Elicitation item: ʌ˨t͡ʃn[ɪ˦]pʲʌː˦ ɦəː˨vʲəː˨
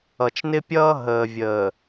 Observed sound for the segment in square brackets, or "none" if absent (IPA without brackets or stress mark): ɪ˦